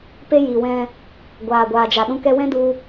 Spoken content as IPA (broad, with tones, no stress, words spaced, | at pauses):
pe˦ji˨wɛ̃˧ | ɡʷaː˨ɡʷaː˨d͡ʒa˨ɗũ˧ kɛ˧wɛ̃˦du˧